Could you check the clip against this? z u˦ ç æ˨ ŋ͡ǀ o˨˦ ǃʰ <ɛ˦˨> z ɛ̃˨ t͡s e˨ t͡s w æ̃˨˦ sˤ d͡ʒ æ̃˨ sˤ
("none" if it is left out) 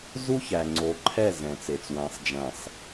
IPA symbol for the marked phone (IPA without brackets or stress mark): ɛ˦˨